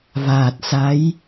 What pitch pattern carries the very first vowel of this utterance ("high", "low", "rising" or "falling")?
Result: low